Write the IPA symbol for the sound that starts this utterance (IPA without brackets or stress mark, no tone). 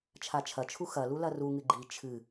t͡ʃʰ